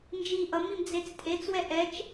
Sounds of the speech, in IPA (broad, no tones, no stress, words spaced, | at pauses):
nd͡ʒi ʔʌmim d͡zet͡stʼet͡swɛ ʔɛt͡ʃ